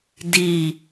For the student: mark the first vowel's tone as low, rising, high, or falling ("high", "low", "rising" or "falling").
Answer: falling